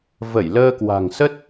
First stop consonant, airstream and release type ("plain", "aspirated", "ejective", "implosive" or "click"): plain